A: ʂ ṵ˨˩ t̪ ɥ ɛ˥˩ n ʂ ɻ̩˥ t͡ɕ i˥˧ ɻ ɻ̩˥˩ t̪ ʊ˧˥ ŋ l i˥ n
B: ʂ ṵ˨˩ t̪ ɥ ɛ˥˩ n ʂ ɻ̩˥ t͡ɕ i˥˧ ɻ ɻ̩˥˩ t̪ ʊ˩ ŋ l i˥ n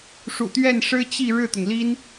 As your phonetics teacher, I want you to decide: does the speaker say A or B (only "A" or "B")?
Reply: B